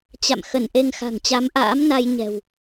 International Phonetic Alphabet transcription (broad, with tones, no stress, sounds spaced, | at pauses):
t͡ɕ a̰˧˨ m x ə˧˩ n ʔ e˧ ŋ x a̤˨˩ ŋ t͡ɕ a˨˦ m ʔ a̰ː˧˥ m n a˧ j ɲ ɛ̤˨˩ w